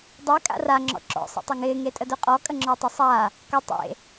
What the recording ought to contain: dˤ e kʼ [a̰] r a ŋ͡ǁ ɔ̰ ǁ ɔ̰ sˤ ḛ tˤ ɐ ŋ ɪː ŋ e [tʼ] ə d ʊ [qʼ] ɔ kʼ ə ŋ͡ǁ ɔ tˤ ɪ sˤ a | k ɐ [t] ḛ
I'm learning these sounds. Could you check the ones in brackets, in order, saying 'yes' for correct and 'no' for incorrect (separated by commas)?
yes, yes, yes, no